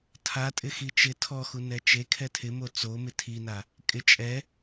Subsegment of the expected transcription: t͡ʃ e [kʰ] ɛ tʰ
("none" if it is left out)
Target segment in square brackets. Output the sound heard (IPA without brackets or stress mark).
kʰ